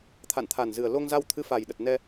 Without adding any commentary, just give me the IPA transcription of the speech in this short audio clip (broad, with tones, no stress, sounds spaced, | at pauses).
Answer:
t̪ʰ a̰˧˨ n t̪ʰ a˨˩ n z ɨ˨˩ ə̯ l o˧ ŋ z a˧ w t̪ʰ ɨ˧ f a˨˩ j ɗ ə˨˩ t̚ n ɛ˧